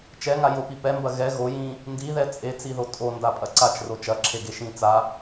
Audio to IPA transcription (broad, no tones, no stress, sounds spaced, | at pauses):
t͡ʃ ɛ ŋ a j o p i p ɛ m b ɐ ɣ ɛ ɣ o j ĩ | n d i ð ɛ t͡sʼ e t͡s i ð o tʼ o n d a pʼ ɐ ǀ a t͡ʃ r o t͡ʃ ɐ ǁʰ e ɡ e ʃ ĩ t͡s a